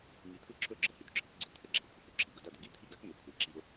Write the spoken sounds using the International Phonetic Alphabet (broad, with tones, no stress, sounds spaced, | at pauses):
ŋ i˧ t̪ʰ ɯ˥ ǁʰ ɵ˥˩ ɡ͡ǁ ə˥˩ h y˩ d ǁʰ ɯ˩˥ k ɡ͡ǀ ɯ˩˥ t̪ʰ ə˥ ɡ͡ǁ a˩ ʊ̯ kʷʼ a˩ k ɵ˥ ǁʰ i˩ ɡ ɵ˥˩ d a˥˩ d ə˧ ɡ i˥ t̪ʰ i˥˩ ɡ a˥ k ŋ ø˩˥ kʷʰ i˩˥ ǁ i˧ ʊ̯